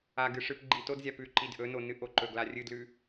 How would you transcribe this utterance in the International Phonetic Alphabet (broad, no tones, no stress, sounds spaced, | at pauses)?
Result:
a ɡ ɨ ʂ ɨ p ɡ͡ǃ i t o d zʲ a p ʉ ǃ i d ʔ ɵ n o n ɨ ʔ o ǃ ɵ ɡ l a rʲ ɨ d l ʉ